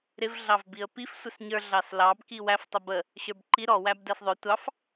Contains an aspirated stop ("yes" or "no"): no